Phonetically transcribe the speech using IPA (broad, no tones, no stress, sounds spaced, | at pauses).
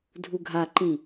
dʱ u ɡʱ a ǃ ĩ